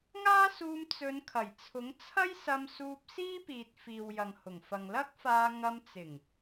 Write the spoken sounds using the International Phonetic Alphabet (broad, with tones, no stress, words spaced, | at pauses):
ŋaː˥suː˧m t͡sɵ˨˧nkʰɐ˨˩jt͡sʰʊ˨˥ŋ t͡sʰɐ˥jsɐ˧msuː˧p̚ siː˥piː˨t̚ fiː˨wjɐ˨ŋhʊ˨˩ŋfɐ˨ŋ lɐ˥k̚faː˧ ŋɐ˧mt͡sɪ˨˩ŋ